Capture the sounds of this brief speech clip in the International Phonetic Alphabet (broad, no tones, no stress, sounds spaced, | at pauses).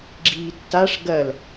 ɡ͡ǁ iː tː a ʂ ɡ ɐ l